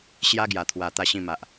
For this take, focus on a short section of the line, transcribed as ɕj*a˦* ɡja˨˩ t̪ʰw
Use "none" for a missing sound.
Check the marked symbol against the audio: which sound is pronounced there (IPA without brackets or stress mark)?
a˦